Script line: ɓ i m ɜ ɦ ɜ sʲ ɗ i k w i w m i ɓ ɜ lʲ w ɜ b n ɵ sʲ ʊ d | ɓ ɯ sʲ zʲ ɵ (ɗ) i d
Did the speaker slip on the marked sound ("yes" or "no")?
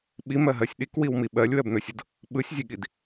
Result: yes